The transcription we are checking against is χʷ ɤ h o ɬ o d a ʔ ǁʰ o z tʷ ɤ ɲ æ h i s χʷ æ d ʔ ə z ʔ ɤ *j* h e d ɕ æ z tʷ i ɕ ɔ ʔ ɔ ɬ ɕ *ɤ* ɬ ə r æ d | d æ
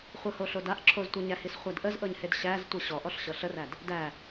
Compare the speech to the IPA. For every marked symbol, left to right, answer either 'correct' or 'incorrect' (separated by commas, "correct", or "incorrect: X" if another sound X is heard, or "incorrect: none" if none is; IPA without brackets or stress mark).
incorrect: ɲ, correct